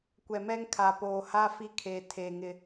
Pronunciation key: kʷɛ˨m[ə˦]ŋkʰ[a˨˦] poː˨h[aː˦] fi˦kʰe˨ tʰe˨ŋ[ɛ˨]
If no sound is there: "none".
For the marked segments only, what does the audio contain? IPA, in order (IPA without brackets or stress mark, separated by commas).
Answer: ɛ˦, a˨, a˦, ɪ˨